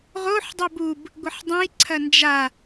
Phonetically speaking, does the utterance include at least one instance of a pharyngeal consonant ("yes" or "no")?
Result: yes